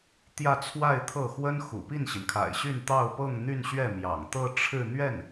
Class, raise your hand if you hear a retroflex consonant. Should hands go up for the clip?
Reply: yes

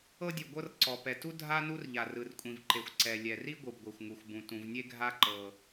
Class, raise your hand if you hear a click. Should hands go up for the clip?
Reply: yes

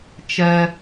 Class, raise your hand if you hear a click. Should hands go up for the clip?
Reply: no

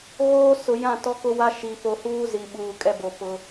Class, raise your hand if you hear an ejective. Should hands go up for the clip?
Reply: yes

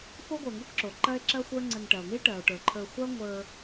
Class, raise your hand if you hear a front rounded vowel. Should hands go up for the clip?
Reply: no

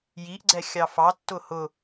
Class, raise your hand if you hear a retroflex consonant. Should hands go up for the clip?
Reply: no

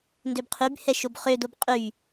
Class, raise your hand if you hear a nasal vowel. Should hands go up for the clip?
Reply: no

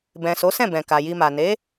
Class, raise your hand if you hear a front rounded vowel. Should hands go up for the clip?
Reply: no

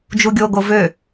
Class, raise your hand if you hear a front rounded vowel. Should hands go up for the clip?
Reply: yes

